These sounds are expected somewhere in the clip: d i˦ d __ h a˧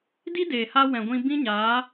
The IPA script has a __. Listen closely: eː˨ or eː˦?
eː˨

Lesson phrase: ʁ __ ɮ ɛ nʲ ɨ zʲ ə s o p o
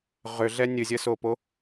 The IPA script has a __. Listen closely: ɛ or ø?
ø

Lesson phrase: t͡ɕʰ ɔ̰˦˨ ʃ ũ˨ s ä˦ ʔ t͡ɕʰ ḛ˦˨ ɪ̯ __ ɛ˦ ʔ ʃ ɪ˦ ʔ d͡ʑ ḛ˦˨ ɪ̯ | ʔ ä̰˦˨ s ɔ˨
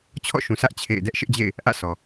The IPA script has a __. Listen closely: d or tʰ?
d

